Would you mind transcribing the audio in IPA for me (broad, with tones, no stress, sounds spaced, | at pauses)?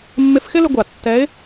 mː ɪ˧ f x ɪ˥ l ɪ˧ ɡʷ a˩ tː ɛ˧˥ ɪ̯